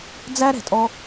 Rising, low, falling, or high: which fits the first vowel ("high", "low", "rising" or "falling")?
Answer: high